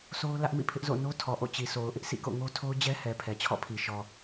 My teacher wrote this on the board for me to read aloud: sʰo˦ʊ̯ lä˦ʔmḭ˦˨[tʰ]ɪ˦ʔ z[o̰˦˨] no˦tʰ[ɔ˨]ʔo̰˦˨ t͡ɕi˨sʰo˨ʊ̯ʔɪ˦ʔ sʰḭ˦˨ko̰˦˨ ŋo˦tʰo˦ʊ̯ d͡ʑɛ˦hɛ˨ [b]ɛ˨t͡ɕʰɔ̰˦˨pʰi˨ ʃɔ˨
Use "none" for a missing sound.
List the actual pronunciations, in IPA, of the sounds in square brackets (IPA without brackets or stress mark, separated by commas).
pʰ, o̰˦˨, ɔ˨, pʰ